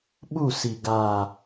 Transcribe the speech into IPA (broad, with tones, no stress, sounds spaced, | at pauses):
ɓ u˦˨ s i˨ ɡ aː˨